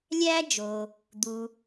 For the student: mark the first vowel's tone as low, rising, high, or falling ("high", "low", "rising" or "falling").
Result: high